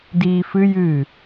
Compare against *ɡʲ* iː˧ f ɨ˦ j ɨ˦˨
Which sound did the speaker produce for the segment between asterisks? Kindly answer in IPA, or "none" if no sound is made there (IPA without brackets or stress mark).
d